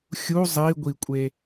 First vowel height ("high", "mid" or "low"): high